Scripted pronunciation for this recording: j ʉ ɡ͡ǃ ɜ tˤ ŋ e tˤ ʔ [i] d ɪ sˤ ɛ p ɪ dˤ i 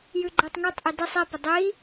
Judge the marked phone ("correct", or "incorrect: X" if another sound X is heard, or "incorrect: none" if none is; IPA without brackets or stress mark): correct